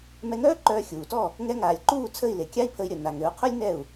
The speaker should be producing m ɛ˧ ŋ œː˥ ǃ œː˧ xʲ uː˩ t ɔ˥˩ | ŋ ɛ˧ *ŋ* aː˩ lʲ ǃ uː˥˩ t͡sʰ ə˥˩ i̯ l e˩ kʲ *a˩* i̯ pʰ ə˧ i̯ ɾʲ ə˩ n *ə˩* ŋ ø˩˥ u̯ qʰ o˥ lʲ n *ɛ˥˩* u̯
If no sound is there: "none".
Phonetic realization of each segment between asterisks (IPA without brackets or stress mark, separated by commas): ŋ, a˥, a˩, ɛ˥˩